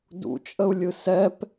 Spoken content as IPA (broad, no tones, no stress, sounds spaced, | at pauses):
d ṵ t͡ʃʼ ə u̯ lʲ ɯ s ɛ p